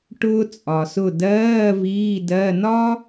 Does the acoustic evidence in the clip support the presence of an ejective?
yes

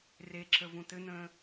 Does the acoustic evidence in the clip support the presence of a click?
yes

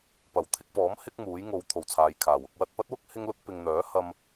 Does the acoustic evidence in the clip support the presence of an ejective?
no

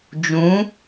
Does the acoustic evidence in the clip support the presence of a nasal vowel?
yes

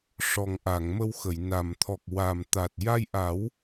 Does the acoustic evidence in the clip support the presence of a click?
no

